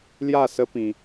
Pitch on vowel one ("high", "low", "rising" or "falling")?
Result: falling